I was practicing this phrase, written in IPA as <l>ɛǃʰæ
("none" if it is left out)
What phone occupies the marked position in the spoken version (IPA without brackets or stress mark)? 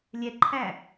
lʲ